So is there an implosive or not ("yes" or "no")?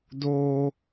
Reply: no